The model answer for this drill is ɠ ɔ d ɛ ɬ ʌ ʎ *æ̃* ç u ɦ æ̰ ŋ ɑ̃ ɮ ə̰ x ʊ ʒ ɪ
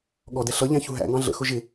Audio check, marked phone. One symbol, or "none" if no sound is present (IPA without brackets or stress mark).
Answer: æ̃